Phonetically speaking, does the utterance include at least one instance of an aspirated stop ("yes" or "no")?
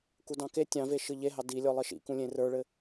no